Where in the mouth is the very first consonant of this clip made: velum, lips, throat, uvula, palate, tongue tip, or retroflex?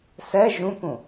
tongue tip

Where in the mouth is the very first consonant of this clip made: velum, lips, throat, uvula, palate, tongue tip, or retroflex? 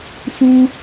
lips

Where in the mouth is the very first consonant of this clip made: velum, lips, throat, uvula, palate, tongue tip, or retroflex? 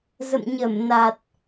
tongue tip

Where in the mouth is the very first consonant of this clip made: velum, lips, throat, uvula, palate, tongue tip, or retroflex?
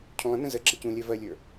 palate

